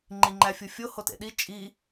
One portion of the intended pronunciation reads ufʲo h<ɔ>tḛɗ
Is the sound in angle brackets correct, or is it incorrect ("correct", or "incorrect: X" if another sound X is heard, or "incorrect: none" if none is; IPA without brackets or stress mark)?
incorrect: o